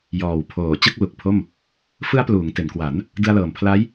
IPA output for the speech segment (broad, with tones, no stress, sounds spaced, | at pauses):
j ɔː˨˩ w pʰ oː˨˩ t͡ɕ ɯ˥˩ k̚ l u˨˩ k̚ pʰ o˥˩ m | f ɯ˦˥ a̯ p l uː˩˦ ŋ t e˩˦ n k w a˩˦ n | d ɯ˧ a̯ l ɤː˨˩ m pʰ l a˦˥ j